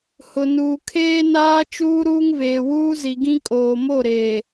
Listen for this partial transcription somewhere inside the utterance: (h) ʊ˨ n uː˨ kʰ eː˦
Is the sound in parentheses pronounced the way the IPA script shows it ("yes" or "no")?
yes